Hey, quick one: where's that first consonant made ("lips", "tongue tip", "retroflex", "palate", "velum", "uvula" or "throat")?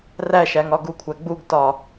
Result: tongue tip